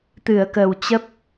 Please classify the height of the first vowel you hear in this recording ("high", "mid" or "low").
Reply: high